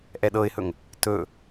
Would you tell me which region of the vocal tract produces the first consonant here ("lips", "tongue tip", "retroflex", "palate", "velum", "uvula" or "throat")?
throat